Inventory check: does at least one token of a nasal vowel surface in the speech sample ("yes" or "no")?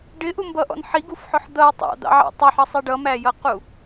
no